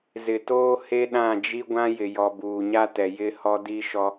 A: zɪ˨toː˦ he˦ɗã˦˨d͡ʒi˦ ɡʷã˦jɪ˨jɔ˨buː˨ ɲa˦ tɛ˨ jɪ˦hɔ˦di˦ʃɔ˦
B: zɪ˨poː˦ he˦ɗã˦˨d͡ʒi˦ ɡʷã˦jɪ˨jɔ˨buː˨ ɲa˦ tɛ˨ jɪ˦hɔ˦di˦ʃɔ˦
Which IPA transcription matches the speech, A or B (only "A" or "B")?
A